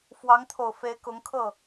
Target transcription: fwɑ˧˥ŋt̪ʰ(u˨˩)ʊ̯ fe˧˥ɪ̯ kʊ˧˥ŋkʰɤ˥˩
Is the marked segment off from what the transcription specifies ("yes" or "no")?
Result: yes